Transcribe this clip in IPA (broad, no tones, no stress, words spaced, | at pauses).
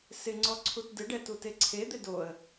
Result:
sɪŋ͡ǀɔ ǀʰutdɪɖɛ tuteǀʰed̪ɪ doə̯